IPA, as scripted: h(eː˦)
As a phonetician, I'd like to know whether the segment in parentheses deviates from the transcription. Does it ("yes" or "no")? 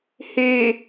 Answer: yes